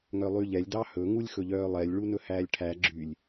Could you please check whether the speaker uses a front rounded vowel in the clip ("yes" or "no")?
yes